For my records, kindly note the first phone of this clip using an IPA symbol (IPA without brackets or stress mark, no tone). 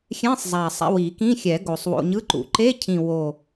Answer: xʲ